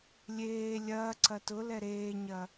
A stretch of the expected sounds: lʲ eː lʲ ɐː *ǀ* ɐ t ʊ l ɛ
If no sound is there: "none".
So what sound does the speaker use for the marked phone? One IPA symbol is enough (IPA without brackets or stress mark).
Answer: ǀ